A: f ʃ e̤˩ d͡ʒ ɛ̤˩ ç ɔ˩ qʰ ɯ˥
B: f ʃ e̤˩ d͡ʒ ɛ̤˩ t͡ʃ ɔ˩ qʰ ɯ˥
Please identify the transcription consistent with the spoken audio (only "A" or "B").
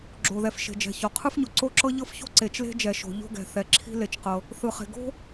A